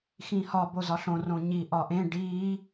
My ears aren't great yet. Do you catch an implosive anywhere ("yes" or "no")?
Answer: no